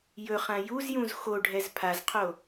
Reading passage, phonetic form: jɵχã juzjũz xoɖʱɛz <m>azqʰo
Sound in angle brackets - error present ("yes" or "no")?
yes